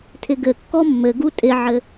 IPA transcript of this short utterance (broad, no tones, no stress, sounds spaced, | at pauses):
tʰ ɪ ɡ ɘ kː ɔ mː ɘ ɡ u tʼ ɪ ʕ ɘ